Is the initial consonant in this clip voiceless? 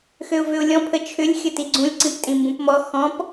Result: yes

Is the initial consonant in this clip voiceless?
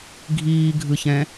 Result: no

